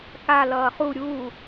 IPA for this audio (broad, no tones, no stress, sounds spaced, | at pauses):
k a l ʌː χ u ɾʲ uː